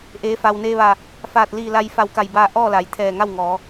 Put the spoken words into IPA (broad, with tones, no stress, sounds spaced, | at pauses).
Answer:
ʔ eː˩˧ f a˩ w n eː˧ ʋ a˧˩ | f aː˧˩ t̚ l iː˧˩ l a˧ j f a˧˩ w k a˧˩ j b aː˧ ʔ ɔː˥˨ l a˩ j t̪ʰ ɛː˧˩ ŋ a˥˨ w ŋ ɔː˩˧